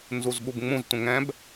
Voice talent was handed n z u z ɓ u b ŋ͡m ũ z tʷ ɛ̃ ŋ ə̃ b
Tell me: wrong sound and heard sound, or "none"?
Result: ə̃ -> ɛ̃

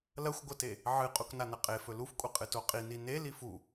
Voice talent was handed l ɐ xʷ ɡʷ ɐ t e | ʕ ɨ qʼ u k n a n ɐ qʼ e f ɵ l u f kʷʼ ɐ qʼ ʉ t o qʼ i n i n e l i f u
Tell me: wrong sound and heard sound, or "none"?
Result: ʉ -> ɨ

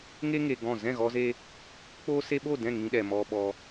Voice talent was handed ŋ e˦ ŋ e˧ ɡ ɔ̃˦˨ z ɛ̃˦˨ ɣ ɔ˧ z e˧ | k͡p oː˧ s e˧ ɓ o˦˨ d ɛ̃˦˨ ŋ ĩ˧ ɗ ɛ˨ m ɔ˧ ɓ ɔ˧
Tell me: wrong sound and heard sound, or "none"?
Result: none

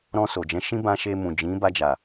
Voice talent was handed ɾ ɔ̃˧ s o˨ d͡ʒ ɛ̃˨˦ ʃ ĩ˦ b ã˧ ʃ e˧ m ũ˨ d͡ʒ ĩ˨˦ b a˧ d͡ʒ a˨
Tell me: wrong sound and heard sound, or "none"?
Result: none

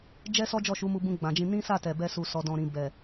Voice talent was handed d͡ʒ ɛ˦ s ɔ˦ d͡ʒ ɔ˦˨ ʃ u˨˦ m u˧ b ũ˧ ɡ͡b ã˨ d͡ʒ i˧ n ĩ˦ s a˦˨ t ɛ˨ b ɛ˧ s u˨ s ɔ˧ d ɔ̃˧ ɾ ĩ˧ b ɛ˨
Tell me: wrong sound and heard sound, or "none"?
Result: i˧ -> ĩ˧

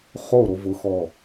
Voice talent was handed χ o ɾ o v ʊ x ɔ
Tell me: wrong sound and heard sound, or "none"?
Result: none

